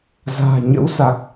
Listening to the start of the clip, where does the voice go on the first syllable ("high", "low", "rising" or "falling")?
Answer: low